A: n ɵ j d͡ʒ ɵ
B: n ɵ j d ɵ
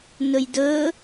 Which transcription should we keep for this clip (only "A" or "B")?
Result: B